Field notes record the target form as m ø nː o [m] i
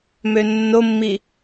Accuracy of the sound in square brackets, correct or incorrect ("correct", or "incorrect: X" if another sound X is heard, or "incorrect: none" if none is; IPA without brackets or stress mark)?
incorrect: mː